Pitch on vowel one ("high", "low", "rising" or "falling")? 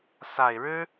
low